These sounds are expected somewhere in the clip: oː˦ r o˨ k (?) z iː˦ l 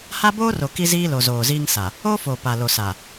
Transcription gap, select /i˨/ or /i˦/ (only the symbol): i˦